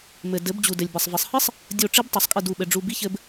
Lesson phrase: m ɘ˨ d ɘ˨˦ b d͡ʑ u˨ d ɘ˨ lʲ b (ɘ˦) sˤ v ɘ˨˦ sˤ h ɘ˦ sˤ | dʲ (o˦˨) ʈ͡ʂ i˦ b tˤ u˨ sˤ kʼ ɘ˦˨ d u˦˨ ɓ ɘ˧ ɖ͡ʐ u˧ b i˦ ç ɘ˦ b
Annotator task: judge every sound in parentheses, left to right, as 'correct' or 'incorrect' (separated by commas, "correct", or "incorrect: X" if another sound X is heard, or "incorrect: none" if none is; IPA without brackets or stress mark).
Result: incorrect: ɘ˨, correct